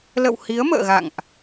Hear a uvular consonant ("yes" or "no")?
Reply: no